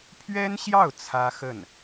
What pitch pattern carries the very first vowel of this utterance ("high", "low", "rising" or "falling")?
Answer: high